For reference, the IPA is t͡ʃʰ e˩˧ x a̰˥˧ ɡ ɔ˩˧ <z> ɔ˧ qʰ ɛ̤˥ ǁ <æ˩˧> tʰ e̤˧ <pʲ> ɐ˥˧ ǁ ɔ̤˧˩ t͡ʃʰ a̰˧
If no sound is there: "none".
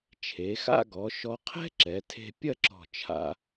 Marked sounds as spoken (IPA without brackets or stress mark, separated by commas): ʃ, ɛ˩˧, pʲ